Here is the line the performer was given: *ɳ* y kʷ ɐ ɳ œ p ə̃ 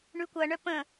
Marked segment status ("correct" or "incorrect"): correct